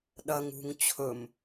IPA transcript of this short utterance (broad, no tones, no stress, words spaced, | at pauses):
ɗɐŋ ṳŋ t͡ɕʰɵm